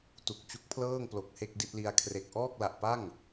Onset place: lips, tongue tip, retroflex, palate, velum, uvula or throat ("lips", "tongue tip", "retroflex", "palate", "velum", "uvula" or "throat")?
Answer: tongue tip